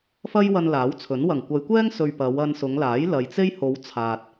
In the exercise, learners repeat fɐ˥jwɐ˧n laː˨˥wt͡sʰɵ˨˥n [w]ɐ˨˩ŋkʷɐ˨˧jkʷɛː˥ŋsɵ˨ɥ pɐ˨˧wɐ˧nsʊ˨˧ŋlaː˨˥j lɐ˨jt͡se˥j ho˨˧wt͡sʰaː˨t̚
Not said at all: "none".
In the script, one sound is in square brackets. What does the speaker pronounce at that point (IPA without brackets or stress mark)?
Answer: w